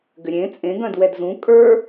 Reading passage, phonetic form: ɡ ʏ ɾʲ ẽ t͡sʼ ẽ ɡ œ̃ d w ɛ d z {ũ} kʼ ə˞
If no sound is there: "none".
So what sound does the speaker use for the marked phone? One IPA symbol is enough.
ũ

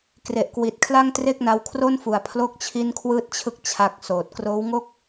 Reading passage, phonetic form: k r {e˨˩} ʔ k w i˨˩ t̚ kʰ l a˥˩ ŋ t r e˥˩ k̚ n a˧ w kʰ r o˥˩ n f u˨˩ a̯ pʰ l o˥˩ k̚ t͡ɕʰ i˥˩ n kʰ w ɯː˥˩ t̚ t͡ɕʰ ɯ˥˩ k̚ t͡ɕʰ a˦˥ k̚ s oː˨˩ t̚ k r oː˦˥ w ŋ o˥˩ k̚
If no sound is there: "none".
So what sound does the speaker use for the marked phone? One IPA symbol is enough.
e˨˩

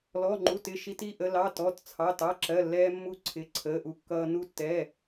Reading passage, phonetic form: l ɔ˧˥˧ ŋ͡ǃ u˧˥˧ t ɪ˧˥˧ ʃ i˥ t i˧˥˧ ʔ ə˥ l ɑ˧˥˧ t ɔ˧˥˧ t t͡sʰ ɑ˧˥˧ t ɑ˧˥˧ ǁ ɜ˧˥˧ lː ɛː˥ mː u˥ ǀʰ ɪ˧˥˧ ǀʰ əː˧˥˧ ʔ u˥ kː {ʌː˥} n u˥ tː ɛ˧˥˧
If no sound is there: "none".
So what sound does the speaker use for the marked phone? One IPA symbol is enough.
ʌː˥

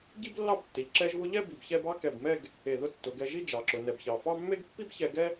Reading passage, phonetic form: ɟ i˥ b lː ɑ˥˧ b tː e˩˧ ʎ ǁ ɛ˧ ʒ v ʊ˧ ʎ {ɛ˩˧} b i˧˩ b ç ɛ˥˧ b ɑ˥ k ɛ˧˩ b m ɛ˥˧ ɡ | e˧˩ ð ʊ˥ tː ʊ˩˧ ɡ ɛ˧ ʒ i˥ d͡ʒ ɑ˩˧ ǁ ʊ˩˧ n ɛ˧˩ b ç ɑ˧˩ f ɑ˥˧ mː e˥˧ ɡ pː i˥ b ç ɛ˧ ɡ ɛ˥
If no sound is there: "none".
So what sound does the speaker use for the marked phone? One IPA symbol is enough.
ɛ˥˧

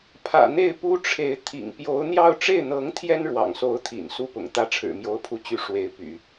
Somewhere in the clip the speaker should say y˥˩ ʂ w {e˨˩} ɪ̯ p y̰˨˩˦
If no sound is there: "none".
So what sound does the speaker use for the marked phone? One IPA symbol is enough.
e˧˥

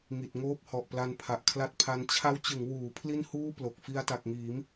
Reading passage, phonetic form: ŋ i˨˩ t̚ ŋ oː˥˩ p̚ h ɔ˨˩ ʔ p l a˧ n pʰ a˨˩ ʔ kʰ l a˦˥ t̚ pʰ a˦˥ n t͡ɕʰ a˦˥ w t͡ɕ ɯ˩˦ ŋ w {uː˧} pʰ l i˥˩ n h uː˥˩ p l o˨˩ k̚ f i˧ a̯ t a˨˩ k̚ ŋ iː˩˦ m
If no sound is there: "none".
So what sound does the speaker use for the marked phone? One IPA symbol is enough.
uː˩˦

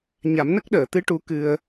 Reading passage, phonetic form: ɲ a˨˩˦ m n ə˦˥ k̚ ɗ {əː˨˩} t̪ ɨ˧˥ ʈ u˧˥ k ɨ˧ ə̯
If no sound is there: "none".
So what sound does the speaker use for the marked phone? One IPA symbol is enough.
əː˨˩˨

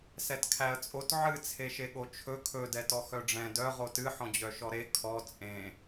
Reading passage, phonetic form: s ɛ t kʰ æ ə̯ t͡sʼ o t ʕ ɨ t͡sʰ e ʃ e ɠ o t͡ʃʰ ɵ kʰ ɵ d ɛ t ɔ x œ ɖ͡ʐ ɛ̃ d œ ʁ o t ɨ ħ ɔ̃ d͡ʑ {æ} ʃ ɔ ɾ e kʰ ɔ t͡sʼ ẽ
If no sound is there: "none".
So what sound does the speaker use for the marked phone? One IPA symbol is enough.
œ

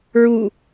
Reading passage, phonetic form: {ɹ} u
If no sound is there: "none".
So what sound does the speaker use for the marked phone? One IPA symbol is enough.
ɹ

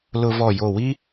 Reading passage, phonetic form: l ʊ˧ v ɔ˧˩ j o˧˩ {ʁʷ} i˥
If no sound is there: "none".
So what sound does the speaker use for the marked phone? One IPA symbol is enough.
w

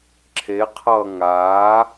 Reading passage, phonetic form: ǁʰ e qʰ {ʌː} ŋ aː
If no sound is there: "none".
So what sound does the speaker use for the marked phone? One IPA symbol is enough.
ʌː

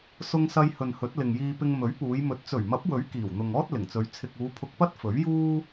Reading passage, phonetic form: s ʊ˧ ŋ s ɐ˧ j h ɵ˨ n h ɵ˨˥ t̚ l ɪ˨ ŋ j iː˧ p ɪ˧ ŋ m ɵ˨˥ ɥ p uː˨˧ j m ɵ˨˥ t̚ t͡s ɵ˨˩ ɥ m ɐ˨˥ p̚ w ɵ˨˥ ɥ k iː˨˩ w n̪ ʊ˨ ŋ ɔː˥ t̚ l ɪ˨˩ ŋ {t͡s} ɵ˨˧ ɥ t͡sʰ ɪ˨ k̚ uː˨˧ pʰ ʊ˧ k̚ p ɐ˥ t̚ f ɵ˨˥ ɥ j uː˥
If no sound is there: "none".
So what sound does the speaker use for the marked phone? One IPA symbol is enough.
t͡s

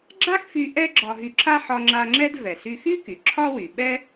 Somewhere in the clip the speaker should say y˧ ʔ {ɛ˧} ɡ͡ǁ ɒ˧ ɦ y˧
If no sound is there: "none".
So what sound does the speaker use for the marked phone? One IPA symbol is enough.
ɛ˥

